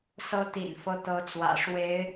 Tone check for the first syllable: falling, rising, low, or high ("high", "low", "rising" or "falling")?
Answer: rising